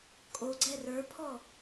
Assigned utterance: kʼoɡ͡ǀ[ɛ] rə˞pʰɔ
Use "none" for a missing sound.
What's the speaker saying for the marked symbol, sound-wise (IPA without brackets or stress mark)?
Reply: ɛ